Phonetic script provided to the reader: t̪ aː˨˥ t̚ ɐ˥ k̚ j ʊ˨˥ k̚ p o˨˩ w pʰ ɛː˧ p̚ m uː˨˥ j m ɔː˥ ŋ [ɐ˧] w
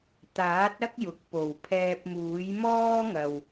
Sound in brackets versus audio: incorrect: ɐ˨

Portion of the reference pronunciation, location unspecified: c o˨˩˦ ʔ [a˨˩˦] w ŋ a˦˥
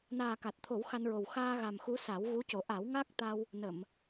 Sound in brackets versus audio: correct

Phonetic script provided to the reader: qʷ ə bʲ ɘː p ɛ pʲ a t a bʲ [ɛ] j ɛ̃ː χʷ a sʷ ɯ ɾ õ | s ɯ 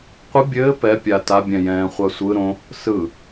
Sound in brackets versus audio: incorrect: ɛ̃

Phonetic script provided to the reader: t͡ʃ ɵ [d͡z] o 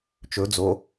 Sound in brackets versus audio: correct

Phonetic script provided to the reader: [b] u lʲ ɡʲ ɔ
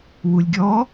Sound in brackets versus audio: incorrect: w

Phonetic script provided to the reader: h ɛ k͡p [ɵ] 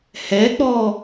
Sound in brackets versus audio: incorrect: ɔ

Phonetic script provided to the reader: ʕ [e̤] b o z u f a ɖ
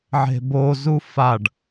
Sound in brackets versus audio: correct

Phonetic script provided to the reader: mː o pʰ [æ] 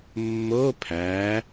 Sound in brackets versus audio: correct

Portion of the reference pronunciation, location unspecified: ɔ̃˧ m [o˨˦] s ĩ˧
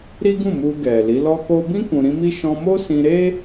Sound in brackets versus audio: incorrect: o˦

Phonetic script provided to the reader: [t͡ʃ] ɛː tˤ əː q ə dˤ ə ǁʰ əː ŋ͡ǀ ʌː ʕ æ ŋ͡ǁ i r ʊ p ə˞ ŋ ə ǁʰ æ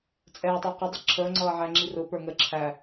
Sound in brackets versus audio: incorrect: t͡sʼ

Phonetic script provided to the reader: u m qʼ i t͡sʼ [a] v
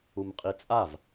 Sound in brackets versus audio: correct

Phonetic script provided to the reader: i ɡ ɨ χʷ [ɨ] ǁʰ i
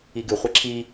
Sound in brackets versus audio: incorrect: e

